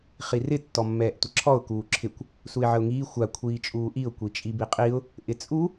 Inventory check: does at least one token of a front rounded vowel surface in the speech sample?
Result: no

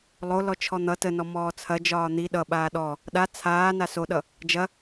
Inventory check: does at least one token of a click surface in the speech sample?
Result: no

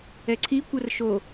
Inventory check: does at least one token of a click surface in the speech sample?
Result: yes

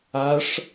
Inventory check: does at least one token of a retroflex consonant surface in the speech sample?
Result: yes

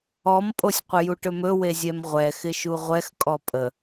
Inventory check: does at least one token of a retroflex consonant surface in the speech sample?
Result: yes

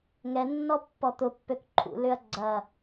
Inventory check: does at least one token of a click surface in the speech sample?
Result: yes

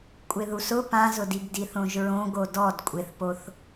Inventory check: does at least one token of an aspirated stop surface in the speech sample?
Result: no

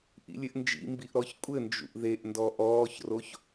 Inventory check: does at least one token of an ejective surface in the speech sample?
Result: yes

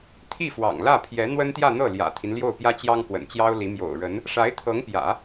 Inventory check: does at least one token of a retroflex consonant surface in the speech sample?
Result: yes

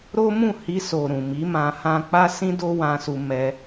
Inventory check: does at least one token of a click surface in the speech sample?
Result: no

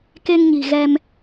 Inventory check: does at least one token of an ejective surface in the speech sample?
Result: no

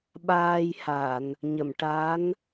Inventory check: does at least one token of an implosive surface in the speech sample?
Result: yes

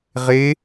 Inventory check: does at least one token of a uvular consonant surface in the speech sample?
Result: yes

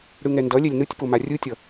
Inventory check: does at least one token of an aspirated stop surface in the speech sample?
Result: no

